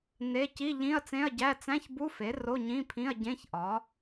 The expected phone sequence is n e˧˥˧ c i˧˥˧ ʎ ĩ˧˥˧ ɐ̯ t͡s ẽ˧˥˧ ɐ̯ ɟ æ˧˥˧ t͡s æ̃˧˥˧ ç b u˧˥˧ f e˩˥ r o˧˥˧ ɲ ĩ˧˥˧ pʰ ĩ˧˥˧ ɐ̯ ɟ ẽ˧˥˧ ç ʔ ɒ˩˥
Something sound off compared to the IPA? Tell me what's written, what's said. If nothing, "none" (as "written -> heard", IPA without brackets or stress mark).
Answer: none